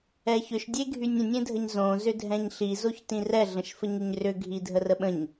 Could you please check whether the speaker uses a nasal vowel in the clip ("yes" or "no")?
yes